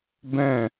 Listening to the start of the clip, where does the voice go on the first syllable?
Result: falling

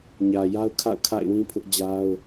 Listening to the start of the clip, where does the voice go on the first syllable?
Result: low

